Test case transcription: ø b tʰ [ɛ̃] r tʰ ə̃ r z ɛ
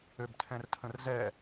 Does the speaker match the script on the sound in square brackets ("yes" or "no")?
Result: yes